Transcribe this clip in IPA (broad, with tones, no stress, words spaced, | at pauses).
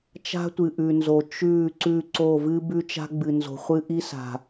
t͡ʃa̤˦tʷɨ˨ʔʉ˨nzo˨ t͡ʃʉ˦˨ ǀʉ˦˨ǀo˦˨ vɨ˦bʉ˦t͡ʃa̤˦ ɡ͡bɨ˨nzo̤˨ χʷɨ˦ʔi˦sa̤˨